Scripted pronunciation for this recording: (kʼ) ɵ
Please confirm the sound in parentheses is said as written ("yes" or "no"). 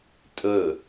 no